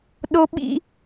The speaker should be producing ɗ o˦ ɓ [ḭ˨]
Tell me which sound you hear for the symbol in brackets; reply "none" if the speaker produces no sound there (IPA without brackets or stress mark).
ḭ˦